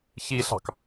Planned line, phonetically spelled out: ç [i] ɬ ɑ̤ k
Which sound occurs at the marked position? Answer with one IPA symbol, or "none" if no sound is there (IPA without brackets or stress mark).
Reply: i